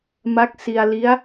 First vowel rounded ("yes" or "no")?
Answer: no